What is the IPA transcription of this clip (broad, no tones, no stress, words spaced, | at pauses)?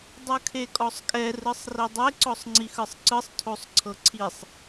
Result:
dˤɯkʰekʼɔsˤkʼɛ rɯsˤridˤe ǀɔsˤŋ͡ǀixɯsˤǀɯsˤ tʰosˤǀʰɤǀʰisˤ